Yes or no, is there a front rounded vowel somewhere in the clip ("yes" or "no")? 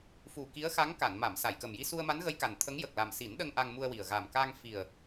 no